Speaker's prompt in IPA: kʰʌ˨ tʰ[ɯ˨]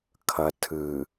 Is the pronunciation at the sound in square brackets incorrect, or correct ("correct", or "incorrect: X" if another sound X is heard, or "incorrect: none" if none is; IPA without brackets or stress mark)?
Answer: correct